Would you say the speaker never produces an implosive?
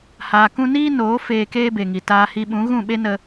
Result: no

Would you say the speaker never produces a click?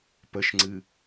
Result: no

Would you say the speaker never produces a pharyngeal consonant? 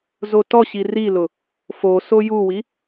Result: yes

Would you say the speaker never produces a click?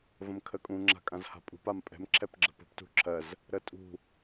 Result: no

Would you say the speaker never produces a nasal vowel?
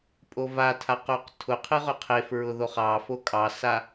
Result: yes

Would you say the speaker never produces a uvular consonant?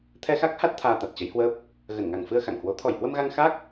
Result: yes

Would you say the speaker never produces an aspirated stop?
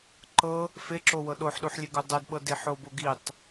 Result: yes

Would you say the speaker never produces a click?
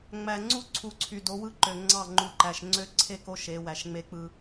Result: no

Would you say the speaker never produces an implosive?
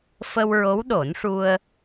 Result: no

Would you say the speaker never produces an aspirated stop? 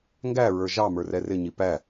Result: yes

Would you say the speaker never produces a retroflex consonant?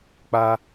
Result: yes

